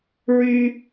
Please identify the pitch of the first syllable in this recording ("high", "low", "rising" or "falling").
high